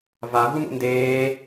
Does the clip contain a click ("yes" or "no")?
no